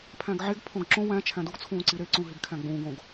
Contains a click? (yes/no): yes